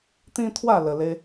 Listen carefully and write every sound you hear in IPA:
t̪ ĩ˦ t̪ʰ w a˥˧ l ə˧ l e˦

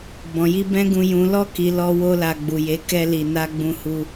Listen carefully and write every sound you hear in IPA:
b ɔ̃˨ j i˧ b ɛ̃˦ ɡ ũ˧ j ũ˨ l ɔ˧ k i˨ l ɔ˧ w o˦ l a˧ ɡ͡b u˨ j e˨˦ k ɛ˦ l i˧ n a˦ ɡ͡b ũ˧ h u˧

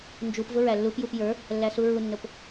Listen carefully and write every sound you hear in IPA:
n d͡ʒ u p v ʊ ɹ æ lː u p j u p j ə˞ | lː æ s u ɹ u nː ʊ p

